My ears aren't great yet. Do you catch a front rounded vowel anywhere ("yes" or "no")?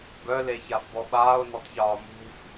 yes